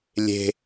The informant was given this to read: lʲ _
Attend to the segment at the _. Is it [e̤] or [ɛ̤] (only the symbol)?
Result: e̤